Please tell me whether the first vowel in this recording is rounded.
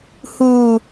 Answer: yes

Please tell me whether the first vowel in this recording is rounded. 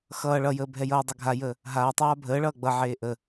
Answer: no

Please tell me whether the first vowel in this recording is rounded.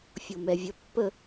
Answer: yes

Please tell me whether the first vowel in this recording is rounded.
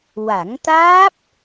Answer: no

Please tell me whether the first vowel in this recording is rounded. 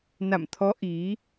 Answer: no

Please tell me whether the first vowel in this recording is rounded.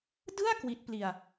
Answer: no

